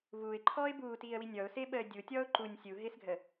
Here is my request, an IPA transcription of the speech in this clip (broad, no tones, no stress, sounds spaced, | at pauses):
v uː ɪ̯ ǃʰ ɔː ɪ̯ b uː t iː ə̯ w i nʲ ɔ ʊ̯ s ɪː ɓ əː dʲ u tʲ ɔː ʊ̯ ǃ u nʲ sʲ u ɦ ɪː s ɡʱ ə